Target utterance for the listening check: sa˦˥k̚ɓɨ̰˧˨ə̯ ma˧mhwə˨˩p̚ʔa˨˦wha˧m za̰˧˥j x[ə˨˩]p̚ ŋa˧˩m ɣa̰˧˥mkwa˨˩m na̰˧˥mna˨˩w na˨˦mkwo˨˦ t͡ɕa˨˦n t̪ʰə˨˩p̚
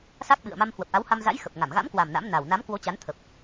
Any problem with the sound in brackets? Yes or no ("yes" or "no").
no